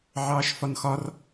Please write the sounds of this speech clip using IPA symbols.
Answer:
ʕɑːʃfɒnxɒr

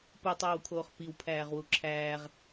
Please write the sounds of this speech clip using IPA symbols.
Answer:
putˤoːwkʰoːχ piwpʰæːʁwu ǁʰæːʁ

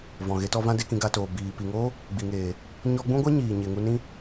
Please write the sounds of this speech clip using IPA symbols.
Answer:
vɔ̃˨ɣe˧tɔ˧vã˦ de˦kĩ˧ɡa˧toː˨ biː˨ pi˨ŋoː˦ | ɡ͡bi˨ŋeː˨ | ɲɔ˧ɡ͡bũ˦ɡʷa˦ ɲiː˨ɲe˨ŋu˧nĩ˦

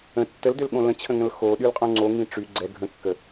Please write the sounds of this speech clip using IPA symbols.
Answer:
ə̃ tːəldølɠõ lə̃t͡ɕʰə̃ŋə̃l xo ɗylqʼõŋ͡ǀoŋĩ ʈ͡ʂy ɡ͡ǀɛ ɡʱə̃kːə

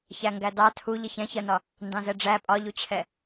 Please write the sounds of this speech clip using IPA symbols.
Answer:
çæŋɡædɑ tʰu ʎəçɛ̃çɜnɒ | ndɑ̃zɛɖ͡ʐæ pʼɒʎut͡ɕʰɛ

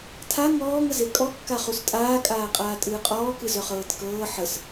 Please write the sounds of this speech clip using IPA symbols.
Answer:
tʰa ŋɔːŋəze kʼɔkːa χustʼaːkʼaːqʼaː tʼɨːqʼɔːkɨzœχ ɤːtkɤː ħəs

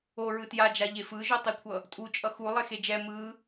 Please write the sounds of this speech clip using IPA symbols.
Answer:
o ɹɯtjad͡ʒaʎe fɯʒotˤikʷʰʌ | tʼut͡ʃʼʌ xu lˠexed͡ʒɛ mɯ

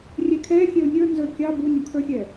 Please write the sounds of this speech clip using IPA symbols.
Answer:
rʲɛkʰɛxʲɛʊ̯ nʲə˞ nzə˞kʲɑ bunʲɔkʰə˞xʲɛ

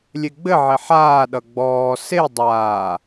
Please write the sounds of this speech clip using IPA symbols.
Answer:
lʲeɡ͡bɘʕe ħaːɗʌ ɡ͡bɔː se dˤaː

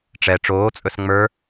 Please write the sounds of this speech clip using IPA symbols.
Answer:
ʈ͡ʂɛ ʈ͡ʂoːt͡sʼɵs ŋ͡mə˞

